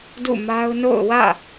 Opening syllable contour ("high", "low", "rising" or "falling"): falling